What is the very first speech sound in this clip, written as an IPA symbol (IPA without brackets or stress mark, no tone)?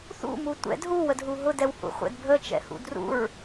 θ